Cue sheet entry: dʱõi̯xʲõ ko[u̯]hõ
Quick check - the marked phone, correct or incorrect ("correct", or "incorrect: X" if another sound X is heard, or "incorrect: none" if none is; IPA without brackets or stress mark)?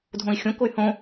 incorrect: y̯